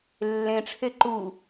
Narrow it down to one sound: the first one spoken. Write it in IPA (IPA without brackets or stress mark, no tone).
lː